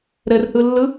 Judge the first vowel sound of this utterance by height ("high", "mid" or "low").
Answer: mid